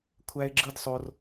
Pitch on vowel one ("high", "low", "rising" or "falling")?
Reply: high